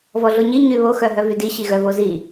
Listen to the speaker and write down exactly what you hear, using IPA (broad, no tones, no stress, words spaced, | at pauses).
vɔɮoɲi ɲyβo xœɦœvydi ɕiɣœvozi